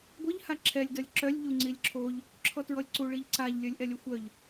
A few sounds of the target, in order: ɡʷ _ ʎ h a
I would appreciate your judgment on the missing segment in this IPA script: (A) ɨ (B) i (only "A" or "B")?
A